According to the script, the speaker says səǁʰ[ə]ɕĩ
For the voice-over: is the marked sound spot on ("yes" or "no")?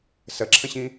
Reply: no